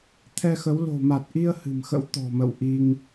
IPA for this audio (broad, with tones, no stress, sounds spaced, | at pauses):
t̪ʰ ɛ˧ x ə˨˦ w l o̤˨˩ m a˨˩ t̚ ʔ i˧ ə̯ h ɨ̤˨˩ m x ə̰˧˥ w t̪ ɔ̤˨˩ m ə̰˧˨ w ʔ i˧ ŋ